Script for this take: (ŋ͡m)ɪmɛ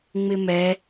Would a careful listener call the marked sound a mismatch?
no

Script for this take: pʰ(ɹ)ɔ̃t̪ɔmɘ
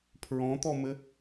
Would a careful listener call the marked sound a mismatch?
no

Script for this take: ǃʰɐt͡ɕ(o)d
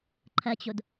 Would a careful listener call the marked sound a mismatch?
no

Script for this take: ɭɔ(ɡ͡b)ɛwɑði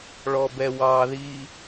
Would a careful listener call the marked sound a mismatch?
yes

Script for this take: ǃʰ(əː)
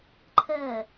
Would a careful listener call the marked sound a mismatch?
no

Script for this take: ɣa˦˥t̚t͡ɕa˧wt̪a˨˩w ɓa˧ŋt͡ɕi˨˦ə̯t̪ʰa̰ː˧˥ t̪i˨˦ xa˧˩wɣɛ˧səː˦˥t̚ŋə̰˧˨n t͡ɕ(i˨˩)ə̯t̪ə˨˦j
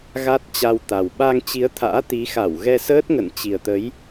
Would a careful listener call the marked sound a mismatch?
no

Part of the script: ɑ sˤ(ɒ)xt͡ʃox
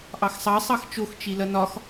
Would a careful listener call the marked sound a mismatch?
yes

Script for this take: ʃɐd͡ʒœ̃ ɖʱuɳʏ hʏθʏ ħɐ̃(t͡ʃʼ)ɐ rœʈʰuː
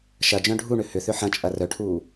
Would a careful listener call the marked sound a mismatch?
no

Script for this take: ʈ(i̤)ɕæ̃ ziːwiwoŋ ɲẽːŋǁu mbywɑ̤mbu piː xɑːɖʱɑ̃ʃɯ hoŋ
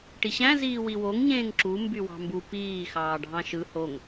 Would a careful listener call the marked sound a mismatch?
yes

